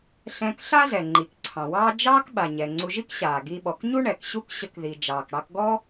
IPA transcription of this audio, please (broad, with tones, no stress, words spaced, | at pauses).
ɬɛ̃˧k ɬa˥zɛ˩ ŋ͡ǃi˩kǀʰɑ̃˩wɑː˥ d͡ʒɑː˥kɓa˩ɲɛ˩ ŋ͡ǀu˧ʒi˥kɕaː˩ ɡi˧ɓɔ˩k ɲu˥ɳɛ˩kɕu˥k ɕə˧kði˩ d͡ʒɑː˩kɽɑ˧kɡɔ˥